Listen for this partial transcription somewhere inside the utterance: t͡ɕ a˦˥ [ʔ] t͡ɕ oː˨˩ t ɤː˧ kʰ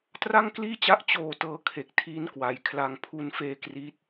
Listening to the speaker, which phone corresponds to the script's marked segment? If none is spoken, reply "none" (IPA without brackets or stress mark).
ʔ